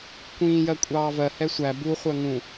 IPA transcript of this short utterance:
kʷ ĩː j ɜ kʷʼ ɑː v ɜ h ɛ sʷ æ b u χʷ ɜ ŋ ũ

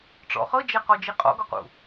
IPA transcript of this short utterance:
ʈ͡ʂ ɔ̰ χ ɤ d͡ʒ ɛ q ɔ d͡ʒ i qʼ ɔ̰ ɡ ɔ q ṵ

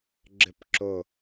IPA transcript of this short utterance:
ɡ͡ǁ ɪ p ǁ ʊ

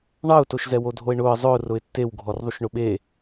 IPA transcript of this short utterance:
ɳ ɑ ʊ̯ t o ʃ z ɛ w o dʱ o ɪ̯ ɳ ʊː ə̯ zˤ ʊː r ʊ ɪ̯ tː e w ɡʱ ɔ r ðˤ u ʃ ɳ ʊ ɓ e

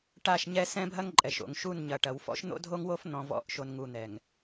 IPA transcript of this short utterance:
ʈ a˦˨ ʃ ɲ ɛ˦ s ɛ̃˦ bʱ ɐ˦ ŋ ǃʼ ɛ˨ ʃ o̰˨ ŋ ʃ u˦˨ n ɲ ɐ˨ ʈ ɐ˨ w f ɔ̰˦ ʃ n̪ o̰˦ dʱ o˦ ŋ w o˦ f n̪ ɔ̃˨ v ɔ̰˨˦ ʔ ʃ o˨ n ŋ u˨ n̪ ɛ˨ ŋ

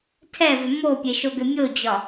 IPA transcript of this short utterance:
tʰ ɛ v ʏ m o pʲ e ʃ o ɡ ʏ mʲ o d͡ʑ ɒ

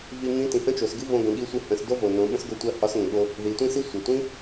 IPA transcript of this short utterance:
v i˧ ŋ ĩ˧˥ t ĩ˩˧ h ə̃˥ t͡ʃ o˩˧ s ɡ ɨ˥ v õ˧ ɡ ə̃˩˧ ɠ i˧˥ sʷ ɨ˧ h ə̃˩˧ s d o˥ v o˩ n õ˩˧ ɓ ə̃˥ s ɡ o˧˥ tʷ ɜ˧˥ h ɒ˧˥ s ŋ ə̃˩ ɠ o˧ | ð i˩˧ tʷ ĩ˥ s i˥ sʷ ɜ˩ tʷ ĩ˥

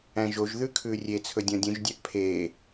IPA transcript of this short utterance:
æ̃ ʒ o ʒ ð ʉ kʰ ʉː rʲ e t͡sʰ ɵ dʲ ɔ̃ dʲ ũ ʒ dʲ æ ʔ pʰ e

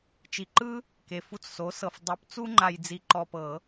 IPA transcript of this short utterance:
t͡ʃ i˨ ǃ ɯ˦ | k e˨ f u˦ t͡s s o˨˦ s ɤ˨ f dˤ o˨˦ p t͡s u˦ ŋ͡ǃ a˨ j d͡z i˨ ǃ ɔ˨ p ɤ˨˩˦

